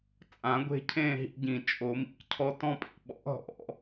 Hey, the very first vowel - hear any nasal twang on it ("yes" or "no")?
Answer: yes